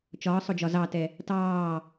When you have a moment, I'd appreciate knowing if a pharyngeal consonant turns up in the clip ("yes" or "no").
no